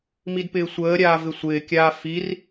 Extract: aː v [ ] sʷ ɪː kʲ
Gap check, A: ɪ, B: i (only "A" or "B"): A